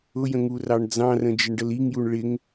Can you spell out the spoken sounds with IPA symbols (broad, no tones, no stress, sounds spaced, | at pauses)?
ʊ j ə̃ ŋ u r ɑ ɳ d͡z ɑ̃ r ə̃ d͡ʒ ɪ ɳ ɖ ə l i ŋ j u ɳ ɭ ɪ ŋ